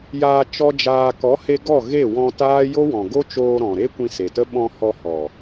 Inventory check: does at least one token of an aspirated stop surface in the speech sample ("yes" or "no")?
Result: no